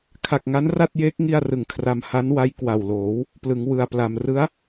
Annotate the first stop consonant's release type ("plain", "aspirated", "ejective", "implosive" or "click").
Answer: aspirated